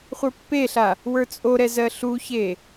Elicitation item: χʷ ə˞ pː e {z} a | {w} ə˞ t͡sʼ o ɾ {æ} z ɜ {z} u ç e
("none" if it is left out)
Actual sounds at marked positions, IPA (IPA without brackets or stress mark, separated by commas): ɬ, w, ɛ, ɬ